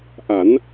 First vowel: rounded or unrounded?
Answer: unrounded